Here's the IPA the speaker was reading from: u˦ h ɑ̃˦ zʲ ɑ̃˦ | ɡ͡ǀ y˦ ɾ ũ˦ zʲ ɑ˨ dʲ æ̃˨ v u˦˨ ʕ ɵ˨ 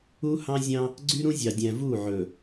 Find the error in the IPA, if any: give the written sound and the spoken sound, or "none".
none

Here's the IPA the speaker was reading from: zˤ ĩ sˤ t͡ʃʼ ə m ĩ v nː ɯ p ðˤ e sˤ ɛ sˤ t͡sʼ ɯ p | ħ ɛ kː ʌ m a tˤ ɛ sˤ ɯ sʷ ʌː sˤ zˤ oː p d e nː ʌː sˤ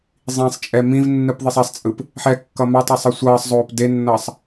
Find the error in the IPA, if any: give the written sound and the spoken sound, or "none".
ə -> ɛ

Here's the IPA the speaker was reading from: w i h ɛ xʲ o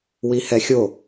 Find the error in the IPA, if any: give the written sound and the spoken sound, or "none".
none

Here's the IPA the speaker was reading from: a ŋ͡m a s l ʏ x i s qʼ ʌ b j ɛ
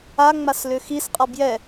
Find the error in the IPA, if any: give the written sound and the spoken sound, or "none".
none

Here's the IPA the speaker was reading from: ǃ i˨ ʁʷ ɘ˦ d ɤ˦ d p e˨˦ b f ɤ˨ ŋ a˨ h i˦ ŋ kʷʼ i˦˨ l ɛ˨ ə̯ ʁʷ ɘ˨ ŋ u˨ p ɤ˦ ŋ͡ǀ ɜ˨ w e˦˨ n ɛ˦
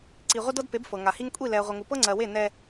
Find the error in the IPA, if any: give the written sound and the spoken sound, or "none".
ǃ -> ǀ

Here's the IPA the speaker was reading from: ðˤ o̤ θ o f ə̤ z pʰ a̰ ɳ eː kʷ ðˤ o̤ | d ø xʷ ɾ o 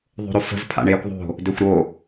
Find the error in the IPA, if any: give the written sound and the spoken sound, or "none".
θ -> ɾ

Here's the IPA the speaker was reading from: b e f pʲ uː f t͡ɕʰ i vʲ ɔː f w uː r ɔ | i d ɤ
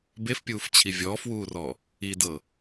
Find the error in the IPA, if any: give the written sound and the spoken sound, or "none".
none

